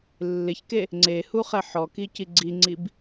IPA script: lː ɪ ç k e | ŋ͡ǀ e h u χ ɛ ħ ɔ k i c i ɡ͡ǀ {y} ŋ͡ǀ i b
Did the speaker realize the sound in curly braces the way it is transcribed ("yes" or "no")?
no